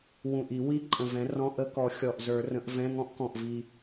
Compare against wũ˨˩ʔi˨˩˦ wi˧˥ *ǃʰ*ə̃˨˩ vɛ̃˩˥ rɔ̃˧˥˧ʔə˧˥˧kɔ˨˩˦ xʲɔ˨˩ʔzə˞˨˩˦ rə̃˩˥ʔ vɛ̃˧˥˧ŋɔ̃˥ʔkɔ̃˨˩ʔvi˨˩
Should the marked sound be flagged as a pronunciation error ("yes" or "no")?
yes